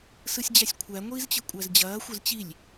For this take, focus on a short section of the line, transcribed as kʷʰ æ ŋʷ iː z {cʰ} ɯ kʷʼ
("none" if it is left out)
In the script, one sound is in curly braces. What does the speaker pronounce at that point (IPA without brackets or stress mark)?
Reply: t͡ɕ